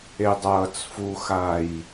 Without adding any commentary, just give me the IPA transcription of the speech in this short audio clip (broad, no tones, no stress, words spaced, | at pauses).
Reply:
edˤʌːt͡sfuxaj